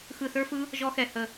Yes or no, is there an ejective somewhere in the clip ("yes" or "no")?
no